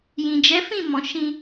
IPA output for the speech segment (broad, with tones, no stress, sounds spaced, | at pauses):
j ĩ˨ d͡ʒ ɛ˨˦ f ĩ˦˨ m ɔ̃˨ ʃ ĩ˧